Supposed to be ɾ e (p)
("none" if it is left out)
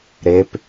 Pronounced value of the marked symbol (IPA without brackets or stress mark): p